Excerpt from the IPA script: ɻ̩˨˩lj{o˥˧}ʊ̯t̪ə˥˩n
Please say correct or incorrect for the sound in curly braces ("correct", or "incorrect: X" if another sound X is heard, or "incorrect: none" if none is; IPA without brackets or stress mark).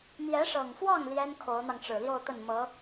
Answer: correct